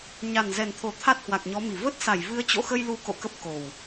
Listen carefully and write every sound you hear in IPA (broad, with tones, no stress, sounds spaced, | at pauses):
ɲ a˨˩ n z ɛ˨˩ n t̪ʰ o˧˩ t̪ʰ a˦˥ t̚ h w a˨˩ k̚ ɲ ɔ˨˦ m i˧˩ v ə˦˥ t̚ s a˧˩ j v ɨ˨˦ ə̯ t͡ɕ o̰˧˨ x ə˧ j l u˨˦ k o̰˧˨ k ə˦˥ p̚ k o˨˩ w